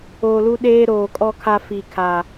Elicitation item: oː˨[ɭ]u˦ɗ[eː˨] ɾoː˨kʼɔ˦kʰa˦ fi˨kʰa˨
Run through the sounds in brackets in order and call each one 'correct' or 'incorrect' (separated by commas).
incorrect, incorrect